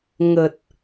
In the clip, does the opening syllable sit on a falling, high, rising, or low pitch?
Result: low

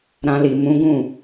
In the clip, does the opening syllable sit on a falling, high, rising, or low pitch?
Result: high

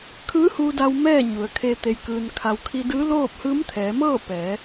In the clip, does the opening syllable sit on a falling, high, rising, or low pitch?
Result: rising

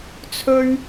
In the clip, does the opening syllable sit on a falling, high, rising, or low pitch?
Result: high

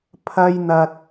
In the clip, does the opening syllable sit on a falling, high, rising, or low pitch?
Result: high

